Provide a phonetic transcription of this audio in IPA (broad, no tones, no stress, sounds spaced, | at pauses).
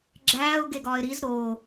ɡ͡ǁ æː ʊ̯ ɡ e ɡ ɒː ɪ̯ ɾ i z ɾ oː